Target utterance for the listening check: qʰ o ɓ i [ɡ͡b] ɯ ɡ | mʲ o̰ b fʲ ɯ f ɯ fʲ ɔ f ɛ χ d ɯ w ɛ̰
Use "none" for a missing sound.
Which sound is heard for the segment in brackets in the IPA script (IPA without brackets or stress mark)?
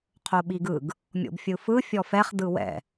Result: ɡ